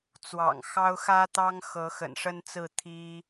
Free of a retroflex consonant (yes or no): no